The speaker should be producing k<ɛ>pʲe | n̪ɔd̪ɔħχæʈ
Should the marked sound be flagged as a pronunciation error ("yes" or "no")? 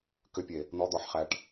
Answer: yes